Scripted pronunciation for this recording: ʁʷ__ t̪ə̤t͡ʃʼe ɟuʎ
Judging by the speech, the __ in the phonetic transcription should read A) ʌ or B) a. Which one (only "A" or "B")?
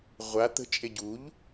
B